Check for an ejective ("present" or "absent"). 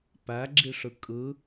present